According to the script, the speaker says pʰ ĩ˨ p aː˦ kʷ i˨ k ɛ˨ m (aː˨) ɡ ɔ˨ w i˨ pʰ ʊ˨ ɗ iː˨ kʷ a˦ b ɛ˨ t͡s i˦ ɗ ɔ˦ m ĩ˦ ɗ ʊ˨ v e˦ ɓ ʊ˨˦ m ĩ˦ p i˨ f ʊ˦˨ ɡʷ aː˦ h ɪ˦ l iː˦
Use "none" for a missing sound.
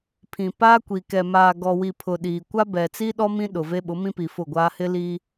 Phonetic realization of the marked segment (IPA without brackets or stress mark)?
aː˨